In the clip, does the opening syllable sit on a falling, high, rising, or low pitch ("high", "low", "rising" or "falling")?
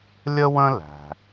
high